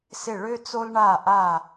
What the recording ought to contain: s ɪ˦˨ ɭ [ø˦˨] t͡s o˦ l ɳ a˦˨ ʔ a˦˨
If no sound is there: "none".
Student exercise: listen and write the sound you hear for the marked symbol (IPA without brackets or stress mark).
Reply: ø˦